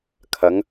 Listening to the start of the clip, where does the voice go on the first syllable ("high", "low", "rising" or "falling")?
rising